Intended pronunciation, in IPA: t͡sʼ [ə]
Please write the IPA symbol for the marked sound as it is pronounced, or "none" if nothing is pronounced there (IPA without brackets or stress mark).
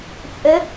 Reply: ə